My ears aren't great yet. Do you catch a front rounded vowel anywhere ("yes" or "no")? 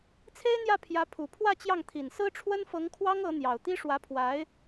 no